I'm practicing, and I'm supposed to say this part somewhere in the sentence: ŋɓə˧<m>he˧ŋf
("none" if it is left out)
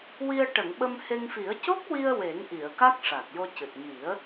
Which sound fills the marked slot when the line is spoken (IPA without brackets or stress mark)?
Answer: m